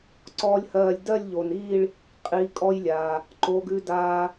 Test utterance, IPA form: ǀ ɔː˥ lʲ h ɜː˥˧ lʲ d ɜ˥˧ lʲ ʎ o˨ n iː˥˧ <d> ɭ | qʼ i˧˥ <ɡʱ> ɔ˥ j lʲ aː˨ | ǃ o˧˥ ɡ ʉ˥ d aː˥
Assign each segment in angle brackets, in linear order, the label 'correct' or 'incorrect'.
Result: incorrect: none, incorrect: kʼ

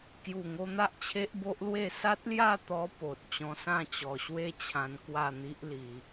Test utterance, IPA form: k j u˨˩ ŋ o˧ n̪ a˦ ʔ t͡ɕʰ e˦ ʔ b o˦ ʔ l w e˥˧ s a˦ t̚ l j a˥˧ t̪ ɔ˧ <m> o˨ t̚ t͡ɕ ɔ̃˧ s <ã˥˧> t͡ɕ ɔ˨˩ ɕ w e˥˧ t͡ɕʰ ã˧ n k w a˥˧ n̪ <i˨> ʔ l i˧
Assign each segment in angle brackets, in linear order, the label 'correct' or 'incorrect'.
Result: incorrect: p, correct, incorrect: i˦

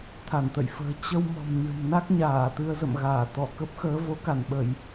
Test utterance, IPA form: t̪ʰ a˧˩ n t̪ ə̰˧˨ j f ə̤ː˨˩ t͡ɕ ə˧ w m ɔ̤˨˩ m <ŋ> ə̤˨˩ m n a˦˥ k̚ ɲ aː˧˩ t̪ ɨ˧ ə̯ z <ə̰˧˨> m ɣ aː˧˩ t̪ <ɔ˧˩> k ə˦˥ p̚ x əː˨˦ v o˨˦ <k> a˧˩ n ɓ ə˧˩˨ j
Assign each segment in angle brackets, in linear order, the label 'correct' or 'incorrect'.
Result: incorrect: ɲ, correct, correct, correct

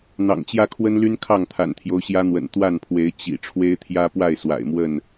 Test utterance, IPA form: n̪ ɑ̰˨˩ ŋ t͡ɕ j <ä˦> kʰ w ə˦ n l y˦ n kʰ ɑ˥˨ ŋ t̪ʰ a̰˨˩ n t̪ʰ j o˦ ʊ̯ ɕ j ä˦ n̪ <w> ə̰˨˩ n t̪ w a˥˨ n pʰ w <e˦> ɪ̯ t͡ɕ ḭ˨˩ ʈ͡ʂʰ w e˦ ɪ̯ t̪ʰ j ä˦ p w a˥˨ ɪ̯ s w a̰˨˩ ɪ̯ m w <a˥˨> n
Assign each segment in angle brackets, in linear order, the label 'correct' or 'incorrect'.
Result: correct, correct, incorrect: e˨˦, incorrect: ə˥˨

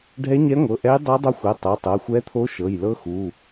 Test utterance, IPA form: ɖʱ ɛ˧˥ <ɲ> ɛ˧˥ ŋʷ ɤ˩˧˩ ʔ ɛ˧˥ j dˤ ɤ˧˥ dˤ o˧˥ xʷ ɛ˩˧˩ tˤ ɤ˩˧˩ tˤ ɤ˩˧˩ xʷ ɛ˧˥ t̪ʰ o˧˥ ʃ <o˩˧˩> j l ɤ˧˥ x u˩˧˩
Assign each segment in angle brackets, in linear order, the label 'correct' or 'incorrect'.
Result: correct, incorrect: ɤ˩˧˩

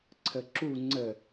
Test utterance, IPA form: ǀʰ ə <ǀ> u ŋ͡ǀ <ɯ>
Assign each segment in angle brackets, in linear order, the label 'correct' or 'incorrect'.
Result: incorrect: ǁ, incorrect: ə

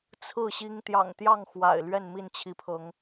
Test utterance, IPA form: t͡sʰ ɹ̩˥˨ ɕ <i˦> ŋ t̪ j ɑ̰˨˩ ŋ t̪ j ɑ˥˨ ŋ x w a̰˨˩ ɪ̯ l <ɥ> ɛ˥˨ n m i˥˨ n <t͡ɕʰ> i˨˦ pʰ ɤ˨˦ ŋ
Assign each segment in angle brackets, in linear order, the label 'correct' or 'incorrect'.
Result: correct, correct, correct

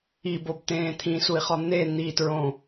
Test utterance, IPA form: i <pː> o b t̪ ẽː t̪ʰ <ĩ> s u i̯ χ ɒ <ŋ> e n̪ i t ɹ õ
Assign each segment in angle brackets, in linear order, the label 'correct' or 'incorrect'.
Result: incorrect: b, correct, incorrect: n̪

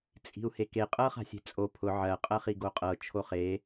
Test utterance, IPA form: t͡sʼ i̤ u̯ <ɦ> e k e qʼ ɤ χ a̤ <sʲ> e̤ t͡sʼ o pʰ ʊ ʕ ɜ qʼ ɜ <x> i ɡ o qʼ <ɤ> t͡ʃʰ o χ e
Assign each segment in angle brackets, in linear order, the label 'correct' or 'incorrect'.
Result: incorrect: h, correct, incorrect: χ, correct

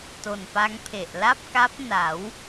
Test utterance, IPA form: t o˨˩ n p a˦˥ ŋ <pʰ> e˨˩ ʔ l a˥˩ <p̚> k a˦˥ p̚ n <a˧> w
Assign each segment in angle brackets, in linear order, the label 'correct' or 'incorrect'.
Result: correct, correct, incorrect: a˩˦

